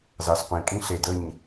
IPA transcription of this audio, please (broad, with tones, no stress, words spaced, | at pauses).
zɑ˨sqʷĩ˨kʼĩ˦ ɬe˨də˦˨ɲ